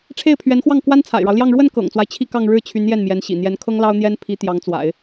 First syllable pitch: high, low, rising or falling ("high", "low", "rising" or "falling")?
falling